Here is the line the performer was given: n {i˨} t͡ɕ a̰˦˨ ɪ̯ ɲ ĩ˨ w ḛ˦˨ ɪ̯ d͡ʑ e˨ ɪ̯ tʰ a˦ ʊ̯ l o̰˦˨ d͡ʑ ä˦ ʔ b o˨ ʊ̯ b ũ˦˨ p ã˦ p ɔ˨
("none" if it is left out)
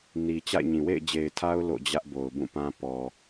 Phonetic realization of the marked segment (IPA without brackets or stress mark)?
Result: i˨